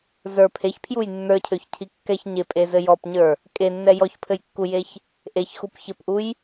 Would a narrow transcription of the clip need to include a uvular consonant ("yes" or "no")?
no